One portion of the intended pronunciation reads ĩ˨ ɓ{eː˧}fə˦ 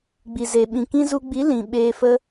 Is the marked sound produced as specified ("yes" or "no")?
yes